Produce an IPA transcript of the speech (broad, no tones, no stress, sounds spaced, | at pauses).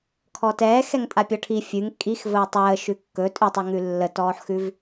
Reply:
kʰ ɔ t ɛː x ɛ ŋ tʼ a pʲ ɔ ʈʰ i fʲ ʉ ŋ kʼ i x v əː tˤ əː ʃ ʉ kː ɵ tʼ ʉ tˤ ʉ ŋ ʉ lː ə t ɔː ħ x ʉ v